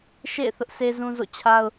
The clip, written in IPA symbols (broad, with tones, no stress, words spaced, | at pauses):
ʃḛ˦˨ɪ̯ θʊ˦ʔsʰe˦zũ˦zo̰˦˨ t͡ɕʰa˦ʊ̯